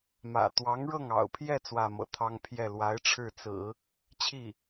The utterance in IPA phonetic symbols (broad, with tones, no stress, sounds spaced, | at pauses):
m ä̰˨˩ t̪ w ɑ˧˥ ŋ ɻ ɤ˥˩ ŋ ɑ̰˨˩ ʊ̯ pʰ j ɛ˥˧ t͡s w ä˥˩ m ɤ̰˨˩ t̪ʰ ɑ˥ ŋ pʰ j ɛ˥˩ l w a˧˥ ɪ̯ ʈ͡ʂʰ ɻ̩˥˩ t͡s ɹ̩˨˩˦ | t͡ɕʰ i˥˩